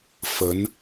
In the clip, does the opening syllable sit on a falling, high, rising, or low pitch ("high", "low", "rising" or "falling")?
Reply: rising